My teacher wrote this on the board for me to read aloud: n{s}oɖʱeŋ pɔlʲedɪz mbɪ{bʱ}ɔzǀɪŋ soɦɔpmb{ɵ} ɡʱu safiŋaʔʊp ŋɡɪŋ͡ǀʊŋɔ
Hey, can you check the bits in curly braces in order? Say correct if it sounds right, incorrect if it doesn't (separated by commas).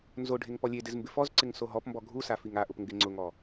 incorrect, incorrect, incorrect